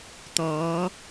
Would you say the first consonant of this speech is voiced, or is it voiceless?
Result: voiceless